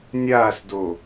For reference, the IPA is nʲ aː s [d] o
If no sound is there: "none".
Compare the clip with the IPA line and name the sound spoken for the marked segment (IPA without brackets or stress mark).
d